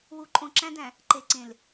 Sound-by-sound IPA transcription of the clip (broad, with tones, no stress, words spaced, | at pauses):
wu˨ǃʼõ˨ǁæ̃˦dæ̃˨ | ǃe˨ǀẽ˨l